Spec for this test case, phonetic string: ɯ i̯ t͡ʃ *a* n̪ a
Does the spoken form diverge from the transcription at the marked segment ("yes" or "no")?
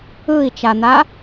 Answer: no